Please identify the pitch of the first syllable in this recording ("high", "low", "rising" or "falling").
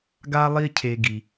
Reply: high